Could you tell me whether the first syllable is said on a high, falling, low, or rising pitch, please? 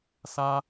high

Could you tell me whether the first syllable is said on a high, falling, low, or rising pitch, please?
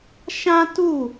high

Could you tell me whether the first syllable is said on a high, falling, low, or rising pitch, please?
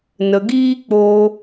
low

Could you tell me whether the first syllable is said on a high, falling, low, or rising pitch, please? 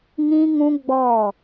high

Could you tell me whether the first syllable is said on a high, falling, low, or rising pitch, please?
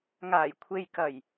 low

